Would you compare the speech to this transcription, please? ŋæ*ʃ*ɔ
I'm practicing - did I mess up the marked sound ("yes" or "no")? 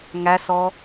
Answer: yes